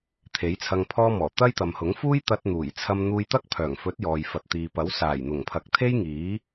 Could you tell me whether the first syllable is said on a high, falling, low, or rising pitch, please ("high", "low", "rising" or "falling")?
rising